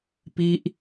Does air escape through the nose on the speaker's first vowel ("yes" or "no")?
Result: no